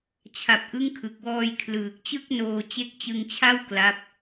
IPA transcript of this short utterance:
t͡ɕʰa˨˩p̚ʔɯ˦˥ŋkʰɯ˨˩k̚wɔː˧j kʰlɯː˨˩k̚t͡ɕɯ˥˩k̚noː˧ t͡ɕe˦˥k̚t͡ɕɯ˧ŋt͡ɕʰa˥˩w kla˦˥p̚

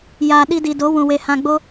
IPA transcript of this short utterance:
jaː˨ ɗi˧di˨do˨˦ wũ˨we˨ hã˨ɡ͡bo˧

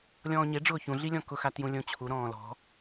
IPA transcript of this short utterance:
lʲɔ̃ːɲeɖ͡ʐʊː çũɮilʲɔ̃ kʊxa tjũlʲõt͡ɕʰu ɾɔ̃ːlɔ̤

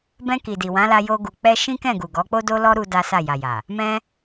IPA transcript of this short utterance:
bɛ̃˧ki˨ di˨wã˨˦la˧ jo˧ ɡu˧k͡pɛ˦ ʃĩ˦kɛ̃˦˨ɡu˨ɡɔ˨˦ k͡po˦do˦lɔ˦ ɾu˦da˦sa˦˨ ja˨ja˨ | mɛ̃˦

